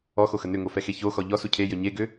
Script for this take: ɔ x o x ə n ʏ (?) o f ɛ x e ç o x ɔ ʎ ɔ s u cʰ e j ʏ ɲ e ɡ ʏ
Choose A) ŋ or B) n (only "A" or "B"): A